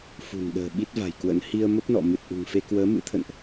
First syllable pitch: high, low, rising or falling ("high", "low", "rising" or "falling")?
low